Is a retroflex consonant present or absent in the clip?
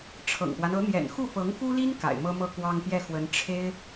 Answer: present